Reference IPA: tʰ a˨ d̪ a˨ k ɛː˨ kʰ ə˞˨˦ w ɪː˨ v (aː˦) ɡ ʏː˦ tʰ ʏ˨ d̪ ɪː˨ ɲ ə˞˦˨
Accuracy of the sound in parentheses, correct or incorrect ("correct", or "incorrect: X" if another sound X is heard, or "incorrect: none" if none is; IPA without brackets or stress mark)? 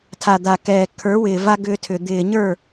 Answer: incorrect: a˦